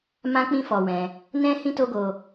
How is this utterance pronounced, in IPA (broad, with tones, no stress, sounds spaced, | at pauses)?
m ã˦ k͡p ĩ˦ f ɔ˧ w ɛ̃˧ | n ɛ̃˦ h ĩ˦ t o˦ ɡ o˧